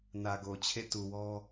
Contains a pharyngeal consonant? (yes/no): no